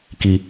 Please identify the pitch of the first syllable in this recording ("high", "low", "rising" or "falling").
low